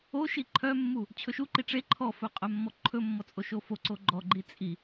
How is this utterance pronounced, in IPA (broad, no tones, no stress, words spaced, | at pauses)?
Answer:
o ʃiǃʰœmːu | t͡ɕʰɵʃuǃi ʈ͡ʂe ǃʰɔfɵ qʼœmːɔǃʰɵmːɔ t͡sʼoʃofoǀo ɡ͡ǃɔɡ͡ǃi t͡sʼi